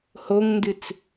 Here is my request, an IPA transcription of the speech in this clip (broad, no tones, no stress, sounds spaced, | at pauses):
h o ŋ n d ɨ t͡s